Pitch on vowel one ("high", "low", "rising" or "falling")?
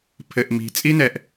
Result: low